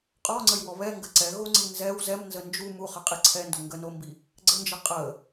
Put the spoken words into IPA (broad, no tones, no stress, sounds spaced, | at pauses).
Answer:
qʼ ɔ ŋ͡ǀ ə j w ɔ β ɛ ŋ ɡ ə ǀ ɛ ɣ o ŋ͡ǀ i n z ɛ w z ɛ m n z ə n d͡ʒ u m u χ ə qʼ i ǀʰ ɛ n d o ŋ ɡ ə n o m b i | ɡ͡ǀ ə n d͡ʒ ə qʼ ə